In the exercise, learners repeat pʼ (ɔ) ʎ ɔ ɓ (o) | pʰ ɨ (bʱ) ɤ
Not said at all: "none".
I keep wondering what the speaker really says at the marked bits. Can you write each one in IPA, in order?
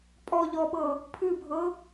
ɔ, ɤ, bʱ

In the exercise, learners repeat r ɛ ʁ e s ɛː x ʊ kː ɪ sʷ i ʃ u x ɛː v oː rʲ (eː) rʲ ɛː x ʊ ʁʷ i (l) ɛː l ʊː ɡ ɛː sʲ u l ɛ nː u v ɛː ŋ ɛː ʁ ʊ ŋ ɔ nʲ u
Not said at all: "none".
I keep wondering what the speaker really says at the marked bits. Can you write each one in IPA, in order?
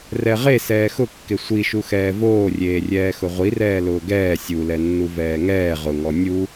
eː, r

